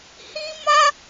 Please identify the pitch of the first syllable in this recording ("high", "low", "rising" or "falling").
high